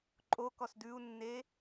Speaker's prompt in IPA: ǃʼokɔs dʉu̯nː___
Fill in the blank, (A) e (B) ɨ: A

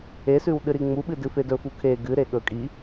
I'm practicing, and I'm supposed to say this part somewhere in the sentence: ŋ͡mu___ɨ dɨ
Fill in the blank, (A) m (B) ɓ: B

